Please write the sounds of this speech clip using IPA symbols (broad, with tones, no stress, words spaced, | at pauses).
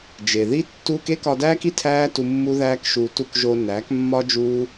d͡ʒe˨ði˦ tːuː˧k e˦kɒ˧dæː˦ki˧ tʰæː˦tu˧ mːu˦ðæː˦kʃuː˧tu˦k ʒo˧næː˨˦kmːɒ˦ d͡ʒuː˦